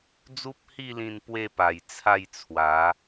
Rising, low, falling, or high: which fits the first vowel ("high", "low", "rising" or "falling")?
high